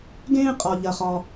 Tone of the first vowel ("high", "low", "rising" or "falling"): high